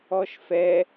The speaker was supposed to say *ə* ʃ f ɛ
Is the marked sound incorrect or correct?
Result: incorrect